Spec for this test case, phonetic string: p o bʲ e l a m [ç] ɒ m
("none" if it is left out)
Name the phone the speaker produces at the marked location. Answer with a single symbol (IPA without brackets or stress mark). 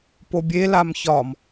ç